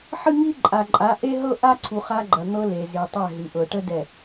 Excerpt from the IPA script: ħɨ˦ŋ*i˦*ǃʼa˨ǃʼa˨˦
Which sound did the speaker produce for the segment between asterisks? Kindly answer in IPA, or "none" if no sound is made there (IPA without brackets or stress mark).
i˦